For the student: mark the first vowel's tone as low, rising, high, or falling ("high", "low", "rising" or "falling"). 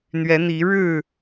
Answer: rising